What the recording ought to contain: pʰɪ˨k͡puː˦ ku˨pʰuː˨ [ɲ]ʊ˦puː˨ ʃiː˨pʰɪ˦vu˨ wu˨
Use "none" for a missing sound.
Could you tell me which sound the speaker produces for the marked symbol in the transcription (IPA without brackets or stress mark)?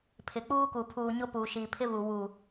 ɲ